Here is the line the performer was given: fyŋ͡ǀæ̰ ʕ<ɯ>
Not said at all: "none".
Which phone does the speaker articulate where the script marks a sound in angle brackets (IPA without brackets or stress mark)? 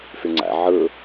ɯ